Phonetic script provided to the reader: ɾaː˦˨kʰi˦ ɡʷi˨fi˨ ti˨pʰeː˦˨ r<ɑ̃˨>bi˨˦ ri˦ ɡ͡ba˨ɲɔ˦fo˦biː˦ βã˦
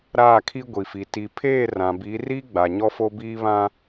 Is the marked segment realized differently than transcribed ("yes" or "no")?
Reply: yes